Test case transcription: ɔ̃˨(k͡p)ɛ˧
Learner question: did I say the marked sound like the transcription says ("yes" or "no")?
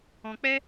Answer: yes